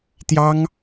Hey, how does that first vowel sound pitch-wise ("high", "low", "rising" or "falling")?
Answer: high